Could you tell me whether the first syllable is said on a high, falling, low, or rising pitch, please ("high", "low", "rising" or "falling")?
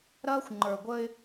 high